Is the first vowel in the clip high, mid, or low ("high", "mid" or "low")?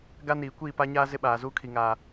low